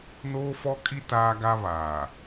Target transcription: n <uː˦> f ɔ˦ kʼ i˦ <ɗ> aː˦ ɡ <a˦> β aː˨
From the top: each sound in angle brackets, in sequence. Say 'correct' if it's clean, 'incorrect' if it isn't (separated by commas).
incorrect, incorrect, correct